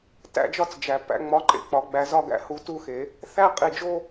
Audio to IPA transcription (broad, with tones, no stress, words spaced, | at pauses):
tæ̰˥˩d͡ʒɒ˥˩t͡s d͡ʒæ˩ pæ̰˥˧ ŋ͡mɒ˨˥ǃḛ˩˧˩k͡pɒ˨˩˦ ɡ͡bæ˨˩˦z ɒ˥˧ɡ æ̰˨˥hu˨˥tu˥˧ xe˨˩˦ | θæ˥˧qʼi˩˧˩d͡ʒo˥˧